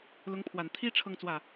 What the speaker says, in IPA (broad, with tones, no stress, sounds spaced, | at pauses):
l ʊ˧˥ ŋ pʰ w a˨˩ n t̪ʰ i˥ ʈ͡ʂʰ ɤ˥˧ ŋ t͡s w ä˥˩